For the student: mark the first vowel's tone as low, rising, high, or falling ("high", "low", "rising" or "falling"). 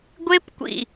high